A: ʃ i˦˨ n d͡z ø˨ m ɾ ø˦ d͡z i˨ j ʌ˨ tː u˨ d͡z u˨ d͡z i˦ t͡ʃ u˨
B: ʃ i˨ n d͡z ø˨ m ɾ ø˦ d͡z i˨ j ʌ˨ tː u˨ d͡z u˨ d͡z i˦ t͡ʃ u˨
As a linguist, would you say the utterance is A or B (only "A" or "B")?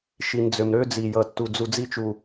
B